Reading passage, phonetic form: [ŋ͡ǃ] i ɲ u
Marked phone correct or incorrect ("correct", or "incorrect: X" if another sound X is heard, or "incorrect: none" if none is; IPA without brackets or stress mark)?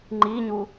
correct